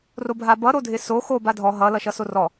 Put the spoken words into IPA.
robʱabʌ ɾodʱɪso xo badʱɔ ɦʌ lʌʃʌsorɔ

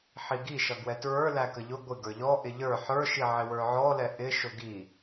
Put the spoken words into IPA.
ħiɡi ʃʌɡwɛtɹə˞ lækəʎʊ ɡʷɪ ɡə˞ʎɔ ʔɪʎə˞ ħə˞ʃi ʕɪwə˞ʕɔlɛ ʔɪ ʃʊɡi

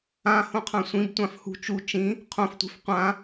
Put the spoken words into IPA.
ãhõqʰã sʷĩbtʷãf hṳ t͡ʃu t͡ʃĩ | qʰõftʷi̤f qʷã

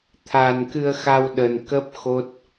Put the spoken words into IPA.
t̪ʰa˨˩nkɨ˧ə̯xa˧wɗə˨˩n kə˦˥p̚ xo˦˥t̚

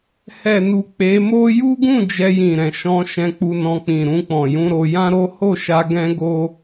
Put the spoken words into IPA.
hɛ˨nu˨ k͡pe˨˦mo˦ ju˦ɡũ˦˨ d͡ʒɛ˧jĩ˨ɾɛ̃˨ ʃɔ̃˧ ʃɛ̃˧k͡pu˧nɔ̃˧ k͡pĩ˨ ɾũ˧k͡pɔ̃˨jũ˧ɾo˧ jã˦ɾo˦ ho˦˨ʃa˧ ɡɛ̃˦ɡo˦

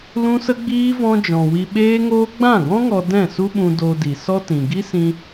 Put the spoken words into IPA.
lũ˦sə˦ɡ͡biː˦ vɔ̃˧d͡ʒɔ̃˨ wi˧ɓeː˦ŋoː˦ ɡ͡bã˦˨ɡɔ̃˦ŋɔ˧ dɛ̃˦˨su˦ɓũ˧ do˧di˨ sɔ˦tĩ˨ ɡi˦sĩ˧

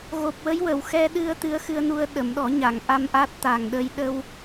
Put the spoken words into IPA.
ɣo˨˩p̚wə˧˥jwə˨˩˨w xɛ˧ɗɨ˧ə̯ t̪ɨ˧˥ə̯xɨ˧ə̯nu˧ə̯ ɗə˨˩˨mɗɔ˨˩˦ɲa˨˩˨ŋʔa˧m ʔa˦˥t̚t̪a˨˩ŋɗə˧j ɗə˧w

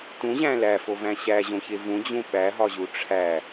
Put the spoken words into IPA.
tũʑæ̃ læfovæ̃ ɕæʑõçe vũd͡ʑũ ɓæɦɒʑu ʈ͡ʂʰæ

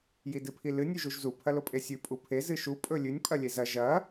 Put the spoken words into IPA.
jidɨpʰilɨ nʲʉʒuʒzu pʰɐlopʼesʲʉ pʼupʰe zɨʃu pʼɵlʲʉnʲ pʼɐlʲezɐ ʒɐ

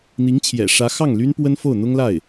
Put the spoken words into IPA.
n̪i˧˥ŋt͡ɕʰjɛ̰˨˩ʂä˧˥ xɑ˥˩ŋly˥npwə˥n fo˥˩ʊ̯n̪ʊ˥ŋla˥˩ɪ̯

